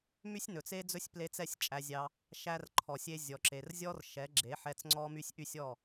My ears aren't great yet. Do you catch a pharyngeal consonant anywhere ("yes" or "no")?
yes